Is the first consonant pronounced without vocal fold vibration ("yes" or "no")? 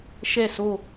yes